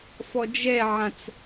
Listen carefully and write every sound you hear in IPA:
f ɔ d͡ʒ ɛ ʕ ã t͡s

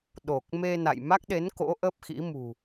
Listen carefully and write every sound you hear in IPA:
ɗ o˨˩ k̚ m e˧ n a̰˧˨ j m a˦˥ k̚ ɗ e˨˦ n k o̰˧˥ ʔ ə˦˥ p̚ x ḭ˧˥ m ṳ˨˩

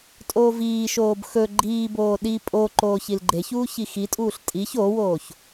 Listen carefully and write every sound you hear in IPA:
tʼ oː v iː ʃ oː b x ɵ ɡ͡ǃ iː b oː ɗ i pʼ o ǃ oː ç i l ɡ͡ǃ e ç uː ç i x i tʼ uː ɬ tʼ i ç o w oː ç

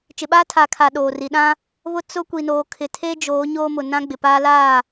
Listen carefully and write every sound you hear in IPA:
t͡ʃ ɪ˨ ɓ aː˦ tʰ aː˨ kʰ aː˨ ɗ oː˨ r i˨ ɗ ã˦ | β ʊ˦ t͡s ʊ˦ kʷ i˨ n oː˨ kʰ ɪ˨ tʰ e˦ d͡ʒ oː˨˦ ɲ oː˦ m ʊ˨ n ã˦ ɡ͡b ɪ˨ p aː˦ l aː˦˨

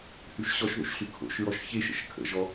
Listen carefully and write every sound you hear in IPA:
h ʉ ʃ ɕ ɔ ʃ ð o̰ ʃ ɬ ʉ kʰ o̰ ʃ ɹ ɔ ʃ ç e ʃ ə̰ ʃ kʰ ə̰ ʒ ɔ

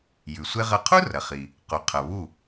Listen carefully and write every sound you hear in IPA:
j ʉ˩ sʷ e˥ ʁ ɐ˥˩ qʰ u˥ r ɐ˩ χ i˩ | q o˩ qʰ ɐ˩ β u˥˩

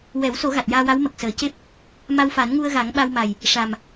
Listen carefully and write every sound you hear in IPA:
w ɛ˨˩˦ w s o˨˩˦ ɣ a˨˩ t̚ j aː˧ w a˧˥ w m ə˨˩ k̚ s əː˨˩˦ c e˦˥ p̚ | m a˧ w f a˨˩˦ n ŋ u˧ ə̯ ɣ a˨˩˦ ŋ ɓ a˧ w m a˨˩ j | ʂ a˨˩ m

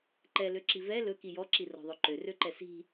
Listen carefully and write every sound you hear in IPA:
ǃ ɛ l ø ǁ i v ɛ l ɵ k i j ɔ ǁ i r ɔ̤ ðˤ ø ǃ ø r ø ǃ ɛ s i̤

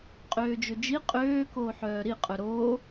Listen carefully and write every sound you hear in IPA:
qʼ øː d͡ʒ ø d͡ʒ i qʼ øː k oː ħ œː ɾ i qʼ œ ɾ oː

